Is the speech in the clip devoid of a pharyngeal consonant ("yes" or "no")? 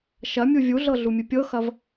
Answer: yes